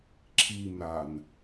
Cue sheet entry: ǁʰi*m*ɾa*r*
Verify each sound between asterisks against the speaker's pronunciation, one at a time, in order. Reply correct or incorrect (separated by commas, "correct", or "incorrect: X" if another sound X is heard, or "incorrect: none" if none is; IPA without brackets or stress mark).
correct, incorrect: n